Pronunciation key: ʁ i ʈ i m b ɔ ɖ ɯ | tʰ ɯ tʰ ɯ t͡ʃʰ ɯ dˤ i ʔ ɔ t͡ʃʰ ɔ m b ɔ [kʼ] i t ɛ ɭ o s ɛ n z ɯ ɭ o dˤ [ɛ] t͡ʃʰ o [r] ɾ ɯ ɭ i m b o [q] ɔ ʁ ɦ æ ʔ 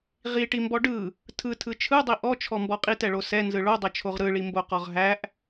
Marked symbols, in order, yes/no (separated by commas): no, yes, no, yes